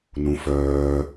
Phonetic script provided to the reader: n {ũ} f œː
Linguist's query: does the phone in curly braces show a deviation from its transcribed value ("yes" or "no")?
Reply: no